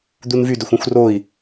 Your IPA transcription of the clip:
d̪ u n v y d ɵ xʷ ũ xʷ r o i̯

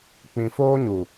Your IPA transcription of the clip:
k͡p ĩ˨ f oː˦ ɲ u˨

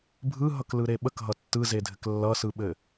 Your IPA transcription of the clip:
bʱ ɯ ɦ ʌ k l ɯ ɾ e ɓ ə k ɦ ʌ tː ɯ z e dʱ ɘ k lː ʌ s ɯ ɓ ɘ

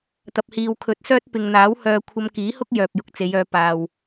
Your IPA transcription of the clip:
t̪ ɐ˨ p̚ h iː˨ w kʰ ɵ˨˥ t̚ s œː˥ t̚ p ɪ˨ ŋ n̪ aː˨˥ w h œː˧ kʷʰ ɐ˧ m k iː˨˥ h ʊ˥ k̚ j œː˨ p̚ j ʊ˨ k̚ t͡s e˨˧ j œː˨˧ p aː˨ w

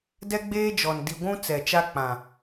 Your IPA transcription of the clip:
d ɛ˦ ɡ͡b eː˦ d͡ʒ ɔ˨ n d i˨ ɡʷ ũ˦ t͡s ɛ˨ t͡ʃ a˦ k͡p ã˨

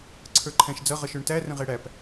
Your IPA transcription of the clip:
ǀʰ ə˞ ǃʰ æ̃ ʃ d͡z ʌ ʁ ʌ ʃ ə˞ ɳ t æ r ə̃ ʁ ɛ ɽ æ p

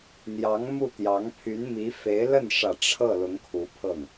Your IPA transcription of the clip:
n̪ j ɑ˧˥ ŋ m u˥˩ t̪ j ɑ˧˥ ŋ pʰ y˧˥ n m i˧˥ f e˧˥ ɪ̯ l ə˥˩ n ʂ ä˨˩ ʈ͡ʂʰ ɤ˥˩ l ʊ˧˥ ŋ kʰ u˧˥ pʰ ɤ˥˩ ŋ

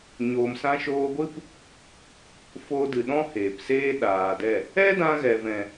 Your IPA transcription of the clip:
ɲ oː˨ m s ã˧ ʃ oː˧ ɡʷ ɨ˦ p | f oː˧ d ɨ˨ ɗ ɔ̃˦ h eː˨ p s eː˦ ɗ aː˨ d ɛ˦˨ | ɛ˦ d ã˧ ɣ ɛ˨ v ɛ̃˨

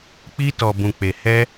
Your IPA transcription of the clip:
k͡p i˦ t ɔ˧ b ũ˧ k͡p e˧ h ɛ˦

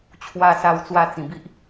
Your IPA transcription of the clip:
t͡ɕʰ w a˧ s a˧ w t͡s w a˥˧ t͡s ĩ˨˩ b i˦ ʔ

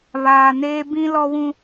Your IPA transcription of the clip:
β aː˨ n eː˦ b ĩ˦ l ɔ˦ w ũ˦

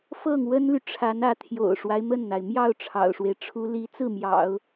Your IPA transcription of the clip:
f ɤ˥˩ ŋ w ə˥ n l y˨ ʈ͡ʂʰ a˧˥ n ä˧˥ t̪ʰ j o̰˨˩ ʊ̯ ʂ w a˦ ɪ̯ m ə˥˩ n n̪ a˩ ɪ̯ m j ɑ˥˩ ʊ̯ ʈ͡ʂʰ ɑ̰˨˩ ʊ̯ ʂ w e˦ ɪ̯ ʈ͡ʂʰ u˥ l i˧˥ t͡s ɹ̩˥˩ m j ɑ̰˨˩˦ ʊ̯

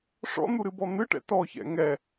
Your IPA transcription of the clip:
ʂ ɔ̰ n̪ u ɾ ɨ b ɔ n̪ ɨ ʈ ɛ̰ t ɔ ç ɛ̰ ŋ ɛ

